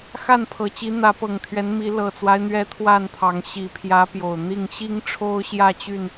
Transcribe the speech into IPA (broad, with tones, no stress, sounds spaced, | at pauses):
x a˥˨ n pʰ ɤ˨˩ t͡ɕ i˨˦ n̪ ä˨˦ p ɤ˨˩ ŋ t̪ʰ ɥ ɛ˨˦ n m i˨˦ l ɤ˨˩ t͡s w a˦ ɪ̯ n̪ ɥ ɛ˦ t̪ʰ w a˥˨ n t̪ʰ ɑ˨˦ ŋ ɕ i˨˩ pʰ j ä˨˦ p j o˨˩ ʊ̯ n̪ i˥˨ ŋ ɕ i˦ ŋ ʈ͡ʂʰ o˦ ʊ̯ ɕ j ä˥˨ t͡ɕ y˥˨ n